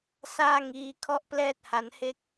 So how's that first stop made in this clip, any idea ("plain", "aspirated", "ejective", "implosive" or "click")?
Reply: aspirated